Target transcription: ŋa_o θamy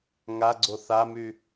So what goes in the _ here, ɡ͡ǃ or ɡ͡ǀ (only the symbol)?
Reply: ɡ͡ǀ